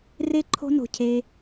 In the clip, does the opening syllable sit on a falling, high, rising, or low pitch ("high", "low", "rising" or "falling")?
high